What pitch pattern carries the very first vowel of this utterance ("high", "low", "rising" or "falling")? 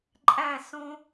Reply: falling